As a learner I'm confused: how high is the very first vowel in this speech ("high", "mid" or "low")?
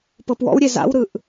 mid